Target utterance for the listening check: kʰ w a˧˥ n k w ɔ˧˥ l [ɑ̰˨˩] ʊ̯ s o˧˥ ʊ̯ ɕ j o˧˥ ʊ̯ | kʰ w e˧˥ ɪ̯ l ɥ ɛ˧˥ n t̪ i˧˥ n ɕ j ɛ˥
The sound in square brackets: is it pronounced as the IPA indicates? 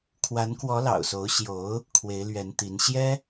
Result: yes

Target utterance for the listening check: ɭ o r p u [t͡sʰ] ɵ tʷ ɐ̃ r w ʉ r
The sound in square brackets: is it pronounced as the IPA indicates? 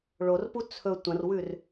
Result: yes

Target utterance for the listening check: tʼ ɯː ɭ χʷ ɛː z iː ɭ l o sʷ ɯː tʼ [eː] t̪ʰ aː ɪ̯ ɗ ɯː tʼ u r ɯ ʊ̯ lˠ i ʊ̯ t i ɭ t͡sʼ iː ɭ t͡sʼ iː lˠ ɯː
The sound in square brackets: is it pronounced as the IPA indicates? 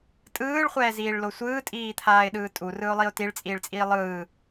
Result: no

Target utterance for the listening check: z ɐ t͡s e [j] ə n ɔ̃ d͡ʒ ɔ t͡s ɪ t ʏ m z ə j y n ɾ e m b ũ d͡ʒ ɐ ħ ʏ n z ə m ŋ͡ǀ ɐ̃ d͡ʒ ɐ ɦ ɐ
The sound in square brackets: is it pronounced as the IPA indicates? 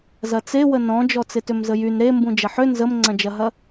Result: no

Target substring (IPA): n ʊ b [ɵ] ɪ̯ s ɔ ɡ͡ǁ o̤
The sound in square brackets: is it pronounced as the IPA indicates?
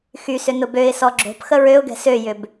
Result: no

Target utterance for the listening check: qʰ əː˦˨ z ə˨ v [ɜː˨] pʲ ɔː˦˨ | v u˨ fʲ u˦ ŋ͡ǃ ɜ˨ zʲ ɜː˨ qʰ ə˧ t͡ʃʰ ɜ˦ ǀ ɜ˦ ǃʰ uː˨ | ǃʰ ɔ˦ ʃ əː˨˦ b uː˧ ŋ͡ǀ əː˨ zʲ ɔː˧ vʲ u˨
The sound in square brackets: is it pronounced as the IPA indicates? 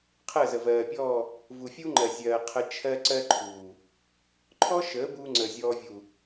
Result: yes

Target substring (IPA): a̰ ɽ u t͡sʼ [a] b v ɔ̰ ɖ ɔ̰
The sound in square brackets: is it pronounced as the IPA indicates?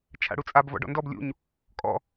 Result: yes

